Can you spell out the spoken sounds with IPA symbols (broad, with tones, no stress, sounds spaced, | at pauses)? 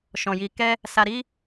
ʃ ɔ̃˨ j i˧ k ɛ˦ | s a˧ ɾ i˦